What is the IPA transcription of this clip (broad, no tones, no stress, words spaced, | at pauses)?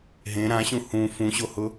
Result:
ɦẽ ɾãɕũ hũ fũɕohʊ